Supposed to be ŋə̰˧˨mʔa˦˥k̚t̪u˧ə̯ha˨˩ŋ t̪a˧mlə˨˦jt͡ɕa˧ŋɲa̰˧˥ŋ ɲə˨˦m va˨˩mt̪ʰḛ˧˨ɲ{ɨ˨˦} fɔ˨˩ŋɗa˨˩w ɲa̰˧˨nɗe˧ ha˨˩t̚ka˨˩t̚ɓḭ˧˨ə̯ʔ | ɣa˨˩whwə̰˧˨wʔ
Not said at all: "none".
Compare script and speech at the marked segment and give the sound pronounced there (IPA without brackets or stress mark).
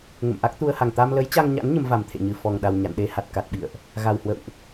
ɨ˨˩